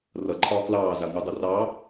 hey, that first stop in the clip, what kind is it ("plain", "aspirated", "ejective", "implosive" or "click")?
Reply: click